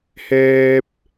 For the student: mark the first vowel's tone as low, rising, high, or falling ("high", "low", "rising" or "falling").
high